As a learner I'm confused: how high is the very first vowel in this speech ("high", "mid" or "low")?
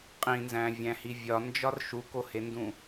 high